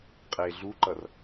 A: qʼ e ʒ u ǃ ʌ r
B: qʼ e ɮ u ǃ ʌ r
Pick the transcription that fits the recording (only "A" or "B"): B